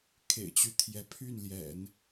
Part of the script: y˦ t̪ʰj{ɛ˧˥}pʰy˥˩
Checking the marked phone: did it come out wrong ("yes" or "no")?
no